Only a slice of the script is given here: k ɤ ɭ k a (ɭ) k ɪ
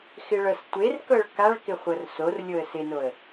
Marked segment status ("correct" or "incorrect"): correct